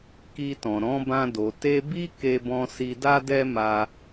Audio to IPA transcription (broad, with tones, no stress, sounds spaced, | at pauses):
k i˧ t ɔ̃˨ ɾ ɔ̃˨˦ b ã˧ d o˨ t e˧ b i˦ k e˧ b ɔ̃˧ s i˧ d a˦ d ɛ˦ m a˧